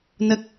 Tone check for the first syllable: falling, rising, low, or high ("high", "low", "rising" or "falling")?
low